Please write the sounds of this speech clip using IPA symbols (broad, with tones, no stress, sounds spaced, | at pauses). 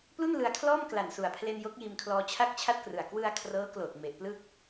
p l u˥˩ n l ɯ˧ a̯ kʰ l ɔː˥˩ m k l a˨˩ n s u˨˩ a̯ pʰ l e˧ n j o˦˥ k̚ j iː˧ m kʰ l ɔː˧ t͡ɕʰ a˥˩ k̚ t͡ɕʰ a˥˩ t̚ k r ɯ˨˩ a̯ k w ɯ˧ a̯ kʰ r ɤː˦˥ k l oː˨˩ t̚ m e˨˩ ʔ p l ɯ˥˩ k̚